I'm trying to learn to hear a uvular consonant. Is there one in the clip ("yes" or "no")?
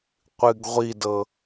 yes